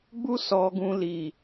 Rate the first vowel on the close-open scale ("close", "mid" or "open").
close